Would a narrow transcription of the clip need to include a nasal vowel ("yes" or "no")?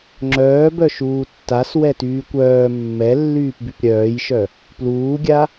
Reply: no